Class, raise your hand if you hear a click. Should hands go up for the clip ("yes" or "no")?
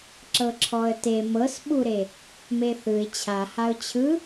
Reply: yes